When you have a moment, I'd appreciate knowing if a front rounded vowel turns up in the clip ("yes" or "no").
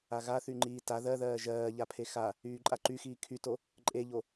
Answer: yes